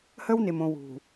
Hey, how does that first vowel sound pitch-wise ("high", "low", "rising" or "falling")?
high